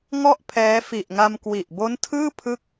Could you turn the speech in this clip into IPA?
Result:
ŋ ɔ˥˩ ʔ pʰ ɛː˦˥ f i˨˩ ʔ ŋ a˧ m k w i˨˩ ʔ b o˦˥ n tʰ ɯː˥˩ pʰ ɯ˥˩ k̚

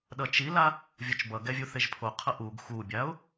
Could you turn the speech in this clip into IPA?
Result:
ɗ ʌ t͡ʃ i l a | vʲ o t͡ʃ b ʌ ɡ ɛ vʲ u θ e ʒ pʰ o qʰ ʌ ʔ u ɡ x u bʲ a ʊ̯

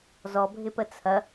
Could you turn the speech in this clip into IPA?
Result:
z ɔ bʱ ɪ p ə t͡sʰ ɐ

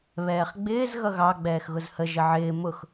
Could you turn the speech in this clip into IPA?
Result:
β ɛː χ ɡ͡b ɪː z ɣ ʌ ɣ ɑ ɡ͡b ɛː x ɣ ʊ z h ə ʒ ə ʕ ɪː m ʊ x

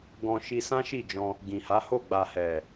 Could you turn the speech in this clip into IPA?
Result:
ɡ ɔ̃˧ ʃ i˧ s ã˦ ʃ i˦˨ d͡ʒ ɔ̃˧ | ɡ ĩ˨ h a˨˦ h o˦˨ ɡ͡b a˨ h ɛ˨

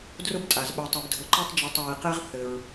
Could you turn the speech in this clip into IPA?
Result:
d r ʊ˥ b tʼ a˩ z ɓ ɛ˨ tˤ ɛ˨ b dʱ ʊ˨ ǃ ʊ˦ tˤ d͡ʒ e˨ tˤ ɹ i˩ q e˦ ʁ θ ɘ˩ ɹ

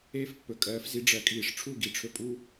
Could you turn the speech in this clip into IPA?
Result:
eː˥ f pː ɵ˩ kʼ ɜː˩˥ f z i˩˥ ɖ͡ʐ ɜ˩˥ kʼ iː˩ ʂ ʈ͡ʂʰ u˥˩ ɡ i˩ ʈ͡ʂʰ ɵ˧ pʼ u˥

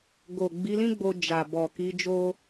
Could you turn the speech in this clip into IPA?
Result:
ɡ o˨ ɡ͡b i˨˦ l ĩ˦ ɡ͡b o˧ d͡ʒ a˨ b ɔ˨ k i˨˦ d͡ʒ o˦

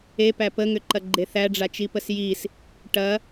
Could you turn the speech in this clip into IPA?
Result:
e p æ p ə ŋ ʏ ǃ ɐ ɡ͡ǃ e θ æ ɖ͡ʐ a t͡ʃ i p ə s j i s | ʈ ɐ

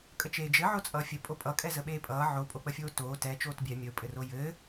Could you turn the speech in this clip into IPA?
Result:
kʼ ə t͡ʃ eː d͡ʒ ɘ ʕ o t͡sʼ ʌː fʲ ɘ pʼ o pʼ ʌ kʼ ɛ z ə ɓ eː pʼ ʌː ʕ o pʼ o k͡p ə fʲ oː t oː t ɛ t͡ʃ oː t bʲ ɛ mʲ ə ʊ̯ pʼ ɘ r o j ɘ

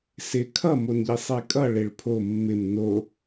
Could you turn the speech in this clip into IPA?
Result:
s ɪ kʰ ʌ m o n ʎ i sˤ e kʼ ʌ ɭ e ɭ pʰ o mː ɪ m n o

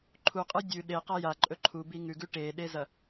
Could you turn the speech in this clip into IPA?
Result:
ǃʰ u qʼ ɨ dʲ ʉ ɗ e q a j a ǃʼ ɵ ǃʰ u b i ŋ ʉ ɡ ʉ ʈ e ɗ e z ɐ

